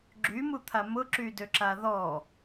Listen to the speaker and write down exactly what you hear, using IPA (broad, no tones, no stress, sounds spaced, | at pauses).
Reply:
ɡ͡ǁ y m u t̪ʰ a m ʊ ǁ y d ø ǁ a ð ɔ